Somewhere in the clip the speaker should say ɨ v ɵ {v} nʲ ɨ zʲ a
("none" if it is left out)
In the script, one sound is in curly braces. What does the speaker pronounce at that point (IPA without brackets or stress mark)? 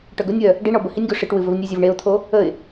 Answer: v